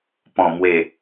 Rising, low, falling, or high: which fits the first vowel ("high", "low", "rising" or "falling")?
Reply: low